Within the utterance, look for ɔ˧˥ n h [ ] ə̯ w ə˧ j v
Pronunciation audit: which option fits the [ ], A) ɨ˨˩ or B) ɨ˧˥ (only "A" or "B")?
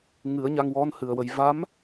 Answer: A